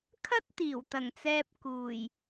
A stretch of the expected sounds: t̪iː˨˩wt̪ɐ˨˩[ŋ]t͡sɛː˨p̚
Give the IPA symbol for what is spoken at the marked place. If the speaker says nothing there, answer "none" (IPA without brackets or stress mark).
ŋ